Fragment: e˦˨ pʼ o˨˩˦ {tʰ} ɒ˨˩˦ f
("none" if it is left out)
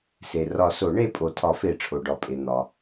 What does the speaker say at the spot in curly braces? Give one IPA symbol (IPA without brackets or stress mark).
tʰ